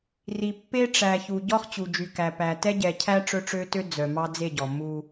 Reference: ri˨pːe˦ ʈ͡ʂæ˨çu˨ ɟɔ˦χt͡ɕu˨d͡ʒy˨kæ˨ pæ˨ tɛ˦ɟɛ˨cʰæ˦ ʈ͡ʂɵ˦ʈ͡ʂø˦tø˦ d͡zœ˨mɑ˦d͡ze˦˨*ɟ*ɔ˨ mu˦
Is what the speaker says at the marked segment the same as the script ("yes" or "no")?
yes